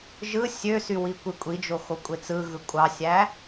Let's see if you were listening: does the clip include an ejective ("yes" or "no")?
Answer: yes